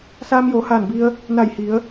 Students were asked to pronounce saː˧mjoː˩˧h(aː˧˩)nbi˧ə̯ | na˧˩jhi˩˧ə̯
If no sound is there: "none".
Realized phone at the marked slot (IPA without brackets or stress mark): aː˧˩